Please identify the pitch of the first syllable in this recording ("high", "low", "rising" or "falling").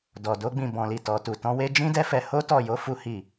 low